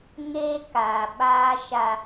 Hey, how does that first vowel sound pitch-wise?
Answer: high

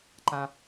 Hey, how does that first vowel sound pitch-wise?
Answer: low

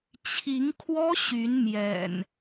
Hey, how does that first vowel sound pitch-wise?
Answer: rising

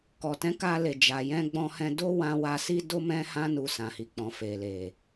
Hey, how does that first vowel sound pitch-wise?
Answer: low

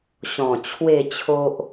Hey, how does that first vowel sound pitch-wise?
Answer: low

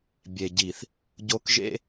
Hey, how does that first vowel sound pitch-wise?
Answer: low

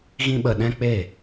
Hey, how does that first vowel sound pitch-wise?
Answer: high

